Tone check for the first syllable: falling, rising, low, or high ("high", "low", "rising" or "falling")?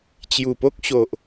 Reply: low